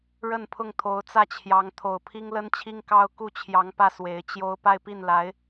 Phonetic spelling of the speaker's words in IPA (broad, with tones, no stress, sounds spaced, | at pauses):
ɻ ə˥˧ n pʰ ʊ˥˩ ŋ t̪ʰ o˧˥ ʊ̯ t͡s ä˥˩ t͡ɕʰ j ɑ˧˥ ŋ t̪ʰ o˨˩ ʊ̯ pʰ i˥ ŋ l ə˥ n t͡ɕʰ i˥ ŋ k ɑ˥ ʊ̯ k u˥˩ t͡ɕʰ j ɑ˧˥ ŋ p ä˥˩ s w e˧˥ ɪ̯ t͡ɕ j o˥ ʊ̯ p a˥˧ ɪ̯ p i˥˩ n l a˧˥ ɪ̯